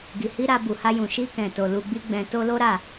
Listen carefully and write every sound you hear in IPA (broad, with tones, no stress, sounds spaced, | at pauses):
ɡ i˨ h i˧ ɾ a˧ b u˨ h a˧ j ũ˨ ʃ i˧ k ɛ̃˨ t o˨ l u˧ ɡ͡b i˦ ɡ͡b ɛ̃˧ t o˧ l o˦ ɾ a˦˨